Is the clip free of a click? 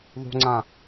no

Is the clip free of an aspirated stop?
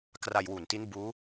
yes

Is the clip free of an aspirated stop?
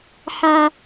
yes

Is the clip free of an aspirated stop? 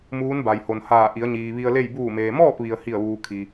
no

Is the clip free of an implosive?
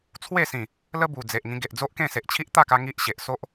yes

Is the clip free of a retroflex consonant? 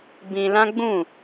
yes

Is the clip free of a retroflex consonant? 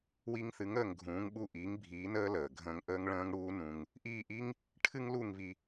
no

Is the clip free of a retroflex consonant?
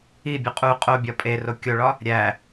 no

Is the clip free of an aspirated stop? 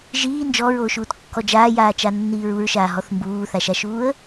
yes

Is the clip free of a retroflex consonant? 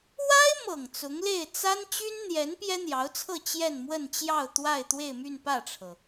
no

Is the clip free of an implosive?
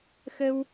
yes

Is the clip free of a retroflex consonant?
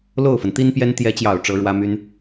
no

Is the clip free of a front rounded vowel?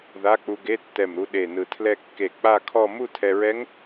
yes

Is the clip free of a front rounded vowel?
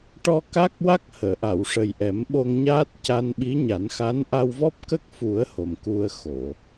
yes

